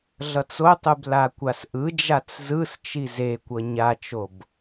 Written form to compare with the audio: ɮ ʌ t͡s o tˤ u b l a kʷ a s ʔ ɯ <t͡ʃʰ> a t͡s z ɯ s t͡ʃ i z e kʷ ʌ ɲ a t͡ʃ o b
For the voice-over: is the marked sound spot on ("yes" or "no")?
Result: no